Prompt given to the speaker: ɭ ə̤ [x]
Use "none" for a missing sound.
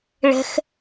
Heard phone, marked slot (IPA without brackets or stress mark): x